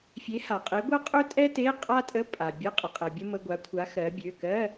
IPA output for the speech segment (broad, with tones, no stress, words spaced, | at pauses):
fʲe˨˥ha˩qʼe˨˥ɡʷɜ˥ qʼø˥tʼɛ˥te˧˥˧ qʼa˥tʼə˧˥˧ pʼa˩bʲə˧˥˧ qʼə˩qʼɛ˩bʲə˥ mə˧˥˧ɡʷa˨˥kʷʰa˨˥ xɜ˩˧bʲø˩˧˩kɜ˧˥˧